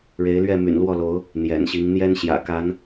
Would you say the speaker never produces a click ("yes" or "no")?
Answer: yes